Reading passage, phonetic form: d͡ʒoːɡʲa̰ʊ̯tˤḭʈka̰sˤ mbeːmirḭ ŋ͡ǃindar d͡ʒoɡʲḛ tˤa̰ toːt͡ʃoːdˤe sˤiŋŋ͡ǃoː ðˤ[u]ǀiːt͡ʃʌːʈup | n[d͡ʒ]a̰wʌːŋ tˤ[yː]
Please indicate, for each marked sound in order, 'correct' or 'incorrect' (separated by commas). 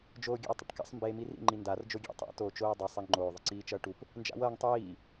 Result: incorrect, correct, incorrect